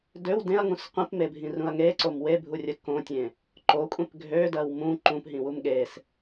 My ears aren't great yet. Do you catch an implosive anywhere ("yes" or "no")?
yes